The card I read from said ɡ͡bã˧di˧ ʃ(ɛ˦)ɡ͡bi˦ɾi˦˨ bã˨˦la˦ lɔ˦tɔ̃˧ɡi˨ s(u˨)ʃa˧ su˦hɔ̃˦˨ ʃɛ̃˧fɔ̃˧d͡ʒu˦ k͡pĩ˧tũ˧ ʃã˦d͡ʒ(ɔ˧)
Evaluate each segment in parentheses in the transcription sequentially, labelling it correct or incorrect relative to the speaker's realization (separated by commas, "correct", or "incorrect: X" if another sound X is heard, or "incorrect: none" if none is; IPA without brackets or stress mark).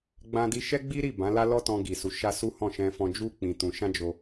correct, correct, incorrect: o˧